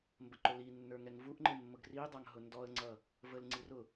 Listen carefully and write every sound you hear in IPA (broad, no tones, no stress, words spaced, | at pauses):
mbəǃʊlinːə˞ ŋɛŋvuʔŋ͡ǃɪ mːʊɡridˤɑŋ ɦʊndɔə̯ŋ͡ǀʌ | vəlŋ͡ǀi rʊ